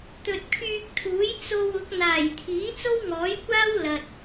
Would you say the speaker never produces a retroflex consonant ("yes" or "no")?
yes